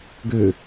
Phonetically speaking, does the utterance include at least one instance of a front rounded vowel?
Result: yes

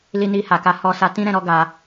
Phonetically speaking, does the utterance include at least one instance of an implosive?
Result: no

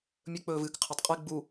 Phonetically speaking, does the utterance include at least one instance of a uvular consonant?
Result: yes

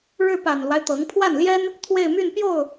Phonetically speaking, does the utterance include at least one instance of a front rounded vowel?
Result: yes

